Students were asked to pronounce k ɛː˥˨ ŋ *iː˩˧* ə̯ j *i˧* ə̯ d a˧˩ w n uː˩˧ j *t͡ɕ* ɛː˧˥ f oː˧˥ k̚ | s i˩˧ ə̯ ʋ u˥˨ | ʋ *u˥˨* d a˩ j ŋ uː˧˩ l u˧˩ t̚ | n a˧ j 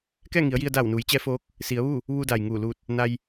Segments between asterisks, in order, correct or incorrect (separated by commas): incorrect, correct, correct, incorrect